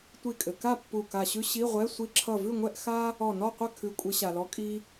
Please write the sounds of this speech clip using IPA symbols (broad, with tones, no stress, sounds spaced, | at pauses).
tʷ i˧˩ kʼ ɘ˩ k a˥˨ pː u˧˩ k a˧˩ ɕ ʉ˥ ɕ i˧˥˧ ʁʷ ɛ˧˥˧ sʷ i˥ ǁʰ ʌ˥˨ v ʉ˥˨ ŋʷ ɛ˥˨ ʔ x a˥ | ɔ˧˩ n ɔ˥˨ qʷ ɘ˥˨ kʰ ʉ˨˦ kʷʼ ɘ˨˦ ɕ a˩ l ɔ˨˦ kʼ i˥